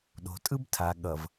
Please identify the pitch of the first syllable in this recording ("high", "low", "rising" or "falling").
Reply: low